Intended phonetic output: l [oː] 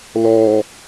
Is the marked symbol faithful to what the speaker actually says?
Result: no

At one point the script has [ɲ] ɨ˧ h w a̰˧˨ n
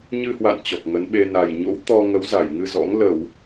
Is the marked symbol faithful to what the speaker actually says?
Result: yes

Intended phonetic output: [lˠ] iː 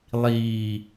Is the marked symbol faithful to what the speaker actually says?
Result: yes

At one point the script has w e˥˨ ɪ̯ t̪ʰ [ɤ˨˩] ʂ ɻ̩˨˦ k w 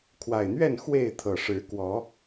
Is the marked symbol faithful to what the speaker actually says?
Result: yes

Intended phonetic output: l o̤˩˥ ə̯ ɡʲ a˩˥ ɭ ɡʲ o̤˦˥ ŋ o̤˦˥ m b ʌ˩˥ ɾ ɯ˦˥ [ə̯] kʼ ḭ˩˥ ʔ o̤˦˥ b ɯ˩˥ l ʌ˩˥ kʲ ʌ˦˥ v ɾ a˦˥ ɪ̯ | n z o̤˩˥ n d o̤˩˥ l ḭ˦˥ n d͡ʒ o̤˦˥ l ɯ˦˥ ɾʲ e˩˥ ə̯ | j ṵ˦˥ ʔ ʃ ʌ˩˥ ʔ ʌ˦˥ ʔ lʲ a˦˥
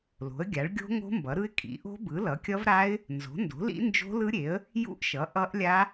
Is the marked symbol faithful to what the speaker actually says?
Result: no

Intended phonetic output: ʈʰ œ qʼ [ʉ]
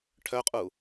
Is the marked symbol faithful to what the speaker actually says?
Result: no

